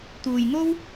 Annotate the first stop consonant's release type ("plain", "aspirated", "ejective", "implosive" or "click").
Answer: plain